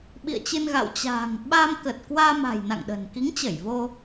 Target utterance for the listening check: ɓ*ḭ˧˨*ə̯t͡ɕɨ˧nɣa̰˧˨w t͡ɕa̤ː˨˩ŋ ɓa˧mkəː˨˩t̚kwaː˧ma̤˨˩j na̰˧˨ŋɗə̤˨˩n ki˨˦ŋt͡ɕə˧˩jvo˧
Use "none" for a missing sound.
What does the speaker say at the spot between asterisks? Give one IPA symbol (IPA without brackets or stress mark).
ḭ˧˨